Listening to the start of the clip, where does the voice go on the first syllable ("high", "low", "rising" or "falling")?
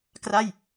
falling